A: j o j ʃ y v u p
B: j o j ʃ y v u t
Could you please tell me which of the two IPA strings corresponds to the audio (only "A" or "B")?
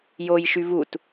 B